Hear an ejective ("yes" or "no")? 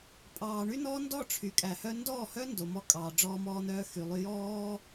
yes